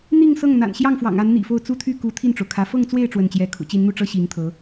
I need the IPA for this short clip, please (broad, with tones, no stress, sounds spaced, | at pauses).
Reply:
n̪ i˥˧ ŋ s ɤ˥˩ ŋ n̪ a̰˨˩ n ɕ j ɑ˥˩ ŋ f w ɑ̰˨˩ ŋ a˧˥ n n̪ ḭ˨˩ f o˥˩ ʊ̯ t͡s u˥ t̪ʰ y˥˩ k u˧˥ t̪ʰ i˥˩ n ʈ͡ʂ o˩ ʊ̯ kʰ ä˧˥ f ɤ˥˧ ŋ t͡s w e˥˧ ɪ̯ ʈ͡ʂ w ə˥˩ n t͡ɕ j ɛ˥ kʰ ṵ˨˩ t͡ɕ i˧˥ n n̪ u˥˩ ʈ͡ʂ ɤ˥ ɕ i˧˥ ŋ t̪ʰ ɤ˧˥